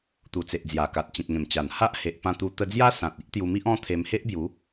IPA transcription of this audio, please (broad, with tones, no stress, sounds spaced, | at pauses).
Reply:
t̪ u˨˩ t͡s e˨ ʔ d͡z j a˨˩ k a˨ t̚ t͡ɕ ĩ˨ t̚ ŋ ẽ˨˩ m t͡ɕ a˨˩ n h a˦ ʔ h e˨ ʔ p ã˧ t̪ u˧ t̪ ə˧ d͡z j a˦ s ã˨ t̚ i˦ ʔ t̪ j u˧ m i˦ ʔ ɔ̃˦ t̪ʰ e˧ m h e˦ ʔ b j u˨˦